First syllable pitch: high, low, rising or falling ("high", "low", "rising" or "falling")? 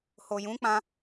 low